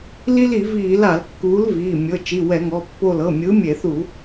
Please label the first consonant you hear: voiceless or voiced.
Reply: voiced